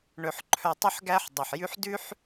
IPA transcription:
ɳ ɵ˩ ħ ǃʰ œ˨ tˤ ʉ˦ ħ ɡ æ˦ ħ dˤ o˩ ħ j ʉ˦ ħ d ʉ˥ ħ

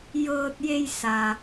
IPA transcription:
j ɤː˧ t̚ j e˧ j s a˩

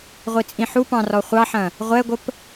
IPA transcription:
ʁʷ i t͡sʼ ĩ ħ u p ɑ̃ r ɔ χʷ ɑ ħ ɐ̃ | ʁʷ ɛ ɡʷ ə p

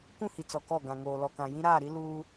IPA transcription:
k ũ˦˨ h i˨ t͡s ɔ˨ k ɔ˦˨ ɡ ã˨ ŋ oː˨ l ɔ˨ k ã˨ j ĩ˦ ɾ aː˦˨ ɾ i˦ l uː˦

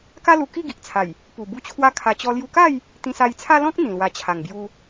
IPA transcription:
k a˦ l u˧ k i˥˧ ɡ i˨ ʔ t͡sʰ a˨˩ j | p u˨˩ b u˦ t͡ɕʰ w a˦ kʰ a˧ t͡ɕ ɔ˧ l j u˧ k a˥˧ j | t̪ ĩ˧ s a˧ j t͡sʰ a˦ l ɔ̃˦ k̚ n̪ ĩ˨˩ l w a˧ t͡ɕʰ a˨˩ ŋ b j u˧

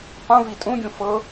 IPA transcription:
q ũ v i tʼ ũ ɡʲ ũ f ɤ

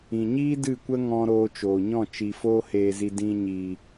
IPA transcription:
ĩ˨ ɲ iː˦ d ɨ˦˨ kʷ ə˦ ŋ ɔ̃˧ ɾ oː˧ t͡ʃ oː˨ ɲ ɔ̃˦˨ t͡ʃ i˨ f oː˧ h eː˨ z i˨ d ĩ˨ ɲ iː˨

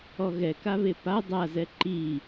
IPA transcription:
ɔ ɣ ɛ k a β e p a dˤ a z ɛ ǃ i

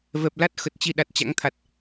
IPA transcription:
v ɛ˨˩ p̚ l a˦˥ t̚ x ə˨˩ t̚ t͡ɕ i˧ ɗ a˨˩ t̚ t͡ɕ a̰˧˥ ŋ t̪ʰ a˨˩ t̚

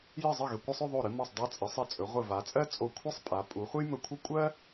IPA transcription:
j ɘ˧˩ zˤ ə˧˩ ɣ ɘ˩˧ kʷ ɘ˧ sˤ ɵ˥˧ ðˤ o˧˩ ɾ ɨ˧ m ɔ˧˩ sˤ dˤ a˧ t͡sʼ ɘ˩˧ sˤ ɘ˧˩ t͡sʼ ɵ˩˧ ʁʷ ɘ˧˩ v a˩˧ t͡sʼ ɜ˥ t͡sʼ o˧˩ kʷʰ ɨ˥ sˤ pʼ a˩˧ pʼ u˩˧ χʷ ɘ˥ j m ɵ˧ kʷʰ ɘ˥˧ kʷʼ ɜ˥

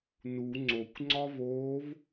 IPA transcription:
n u ŋ͡ǀ o kʷ ŋ͡ǀ ɒ v oː v

